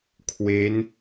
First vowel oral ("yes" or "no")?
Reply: yes